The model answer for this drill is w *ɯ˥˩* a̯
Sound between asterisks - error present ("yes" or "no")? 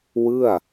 no